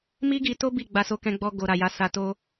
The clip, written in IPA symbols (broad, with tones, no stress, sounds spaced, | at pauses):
m i˦ ɡ i˧ t o˦ b i˦˨ ɡ͡b a˧ s o˧ k ɛ̃˧ ɡ͡b ɔ˧ ɡ o˨ ɾ a˨ j a˨˦ s a˧ t o˦